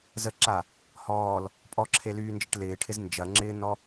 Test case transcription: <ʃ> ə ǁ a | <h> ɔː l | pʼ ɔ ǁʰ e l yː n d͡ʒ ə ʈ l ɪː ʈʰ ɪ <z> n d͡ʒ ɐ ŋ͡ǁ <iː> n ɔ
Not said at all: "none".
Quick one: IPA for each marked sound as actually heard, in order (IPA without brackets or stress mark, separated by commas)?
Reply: z, h, z, ɪː